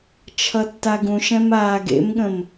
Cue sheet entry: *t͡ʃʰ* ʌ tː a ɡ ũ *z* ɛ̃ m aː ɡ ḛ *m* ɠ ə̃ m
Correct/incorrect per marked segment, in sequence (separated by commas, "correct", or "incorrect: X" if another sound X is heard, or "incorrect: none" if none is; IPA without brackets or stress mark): correct, incorrect: ʃ, correct